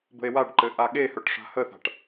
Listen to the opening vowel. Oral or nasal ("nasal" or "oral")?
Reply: oral